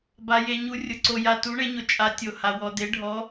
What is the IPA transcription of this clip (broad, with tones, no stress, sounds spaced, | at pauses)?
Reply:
b a˩ j e˩ ɲ u˩˧ rʲ ʊ˩ ǀ o˩ j a˩ t u˩˧ ɳ e˩˧ ɲ ʊ˩ t͡ʃʼ a˩˧ tʲ o˩ h a˩ w ɔ˩ d e˩˧ ɖʱ ɔ˩˧